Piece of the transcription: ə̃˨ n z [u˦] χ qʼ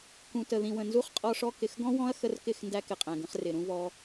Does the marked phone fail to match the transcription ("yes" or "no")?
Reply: no